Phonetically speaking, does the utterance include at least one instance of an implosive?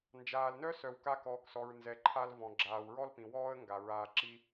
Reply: no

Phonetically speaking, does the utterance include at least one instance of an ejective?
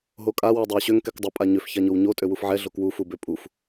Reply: yes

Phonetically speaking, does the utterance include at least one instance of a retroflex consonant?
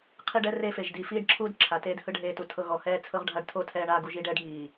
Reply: yes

